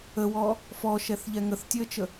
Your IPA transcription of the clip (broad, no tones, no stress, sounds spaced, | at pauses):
ə w ɔ | f ɔ ʃ ɛ θ ʎ ɛ ŋ ə θ tʲ ø ə̯ t͡ʃ ə